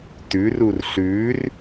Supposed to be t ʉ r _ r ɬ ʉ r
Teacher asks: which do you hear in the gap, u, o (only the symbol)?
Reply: u